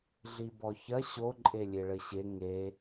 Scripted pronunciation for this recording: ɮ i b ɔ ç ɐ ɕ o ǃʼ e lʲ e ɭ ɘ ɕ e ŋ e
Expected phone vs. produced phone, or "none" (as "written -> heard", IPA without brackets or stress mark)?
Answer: none